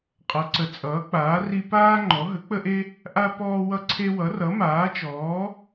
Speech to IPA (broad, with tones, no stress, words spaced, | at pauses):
qʼʌ˩˥ǀə˩˥ t͡sʼʌː˩˥k͡paː˩˥ri˦ paː˦ ŋ͡ǃɔ˩˥ ɦə˩˥k͡pə˦ʔe˦ | ʔa˦ pɔː˦wʌ˦ǀʰe˦ wʌ˩˥rʌ˩˥maː˩˥t͡ʃɔː˩˥